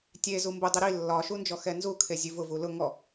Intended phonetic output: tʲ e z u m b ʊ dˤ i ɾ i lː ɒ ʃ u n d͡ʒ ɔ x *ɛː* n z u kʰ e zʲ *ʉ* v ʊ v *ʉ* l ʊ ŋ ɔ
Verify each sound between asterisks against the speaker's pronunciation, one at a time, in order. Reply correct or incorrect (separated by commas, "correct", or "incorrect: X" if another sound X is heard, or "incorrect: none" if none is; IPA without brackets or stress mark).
incorrect: ɛ, correct, incorrect: u